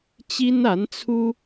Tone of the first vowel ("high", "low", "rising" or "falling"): high